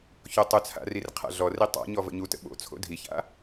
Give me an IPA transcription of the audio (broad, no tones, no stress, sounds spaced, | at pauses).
ç o tˤ ʊ t͡sʰ a̰ r i r qʰ a̰ ɮ ɔ r i tˤ a̰ ɲ ɔ v ə̰ ɲ u t ə̰ ɓ o̰ t͡sʰ o̰ dʱ i ç a̰